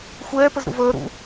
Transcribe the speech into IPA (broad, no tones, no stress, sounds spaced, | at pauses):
xʷ ɛː p ə z ɾ ṵ v əː ɾ ṵ